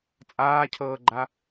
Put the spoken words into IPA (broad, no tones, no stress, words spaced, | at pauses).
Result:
t͡sʼaːcʰɤːɡ͡ǃa